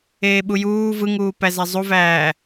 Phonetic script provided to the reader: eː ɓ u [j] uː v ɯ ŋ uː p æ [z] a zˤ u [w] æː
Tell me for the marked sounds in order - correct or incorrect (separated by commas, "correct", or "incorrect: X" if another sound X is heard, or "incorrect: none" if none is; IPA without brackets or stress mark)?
correct, correct, incorrect: v